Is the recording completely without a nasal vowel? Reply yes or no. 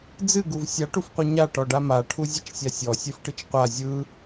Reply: yes